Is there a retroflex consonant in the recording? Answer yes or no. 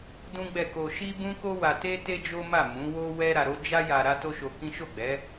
no